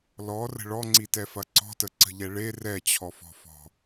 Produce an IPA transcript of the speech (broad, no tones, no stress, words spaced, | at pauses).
lɔrə̤ ɭɔŋ͡ǀitɛfɐ ǀɔ̤təǀə̤ʎɛ ɭe rɛt͡ɕʰɔfɔ̤fɔ̤